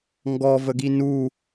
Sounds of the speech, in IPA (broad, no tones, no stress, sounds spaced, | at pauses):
ŋ ɡ ɔ v ə ɡ i n u